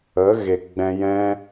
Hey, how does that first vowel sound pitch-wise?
rising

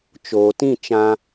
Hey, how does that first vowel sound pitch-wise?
low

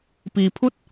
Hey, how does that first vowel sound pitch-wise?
low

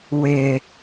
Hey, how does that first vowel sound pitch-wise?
low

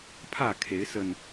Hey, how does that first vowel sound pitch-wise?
falling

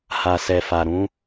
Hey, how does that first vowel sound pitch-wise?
low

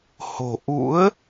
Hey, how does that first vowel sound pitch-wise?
low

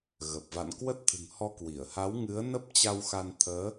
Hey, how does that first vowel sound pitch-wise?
low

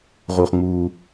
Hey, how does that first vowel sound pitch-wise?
low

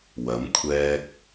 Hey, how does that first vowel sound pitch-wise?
rising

